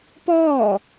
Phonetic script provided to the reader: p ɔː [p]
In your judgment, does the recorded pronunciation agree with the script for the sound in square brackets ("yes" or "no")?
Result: no